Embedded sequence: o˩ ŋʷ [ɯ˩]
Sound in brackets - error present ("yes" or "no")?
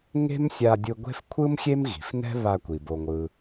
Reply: no